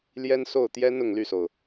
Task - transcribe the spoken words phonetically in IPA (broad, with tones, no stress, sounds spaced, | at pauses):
l j ɛ˥ n s o˥˩ ʊ̯ t̪ j ɛ˥ n ʊ˥˧ ŋ l y˥˩ s o˩ ʊ̯